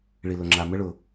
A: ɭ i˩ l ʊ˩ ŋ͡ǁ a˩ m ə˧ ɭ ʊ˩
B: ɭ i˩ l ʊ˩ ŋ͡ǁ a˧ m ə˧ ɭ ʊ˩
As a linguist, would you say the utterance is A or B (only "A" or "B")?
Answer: A